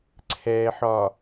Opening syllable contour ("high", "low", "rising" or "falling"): low